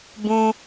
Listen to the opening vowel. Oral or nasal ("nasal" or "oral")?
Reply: nasal